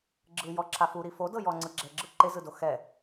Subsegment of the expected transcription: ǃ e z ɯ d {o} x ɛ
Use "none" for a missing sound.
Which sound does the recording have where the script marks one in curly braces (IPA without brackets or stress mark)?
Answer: o